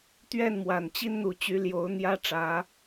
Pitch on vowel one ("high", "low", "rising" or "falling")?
falling